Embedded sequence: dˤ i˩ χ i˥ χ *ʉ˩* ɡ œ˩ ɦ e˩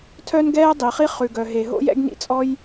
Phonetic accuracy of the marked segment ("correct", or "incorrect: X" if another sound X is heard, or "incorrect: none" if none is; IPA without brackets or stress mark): correct